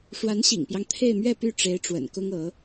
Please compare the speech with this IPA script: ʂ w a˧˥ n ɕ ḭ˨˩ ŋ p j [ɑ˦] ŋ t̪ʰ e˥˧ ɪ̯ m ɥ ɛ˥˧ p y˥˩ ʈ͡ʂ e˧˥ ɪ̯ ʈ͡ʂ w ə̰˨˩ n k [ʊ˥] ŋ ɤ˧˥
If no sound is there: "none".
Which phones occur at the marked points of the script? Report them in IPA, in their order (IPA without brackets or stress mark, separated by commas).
ɑ˦, ʊ˥